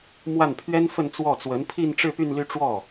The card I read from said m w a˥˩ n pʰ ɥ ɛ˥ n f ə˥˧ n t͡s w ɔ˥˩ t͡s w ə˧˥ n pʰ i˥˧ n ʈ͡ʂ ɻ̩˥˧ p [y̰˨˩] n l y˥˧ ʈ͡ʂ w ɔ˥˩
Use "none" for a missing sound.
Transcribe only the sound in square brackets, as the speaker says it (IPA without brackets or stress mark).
y˥˧